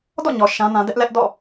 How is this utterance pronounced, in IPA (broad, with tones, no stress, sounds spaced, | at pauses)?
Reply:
d ɔ̰˦˨ ɲ ɔ˨ ʃ ã˦ n ã˦ d ɛ˦ ʔ l ɛ˦ ʔ d ɔ̰˦˨